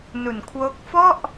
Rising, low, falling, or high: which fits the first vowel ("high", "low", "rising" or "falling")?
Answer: low